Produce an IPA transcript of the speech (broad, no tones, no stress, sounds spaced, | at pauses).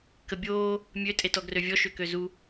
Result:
k ə bʲ oː | mʲ ø tʼ e t ɔ ɡ r ø vʲ ɔ ʃ ø k ø z u